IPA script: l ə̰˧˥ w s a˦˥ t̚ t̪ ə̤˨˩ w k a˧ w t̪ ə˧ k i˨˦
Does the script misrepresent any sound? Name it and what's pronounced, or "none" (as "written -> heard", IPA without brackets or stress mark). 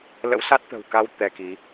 ə˧ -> ɛ˧